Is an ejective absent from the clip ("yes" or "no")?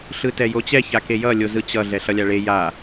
yes